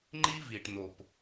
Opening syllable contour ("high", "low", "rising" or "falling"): high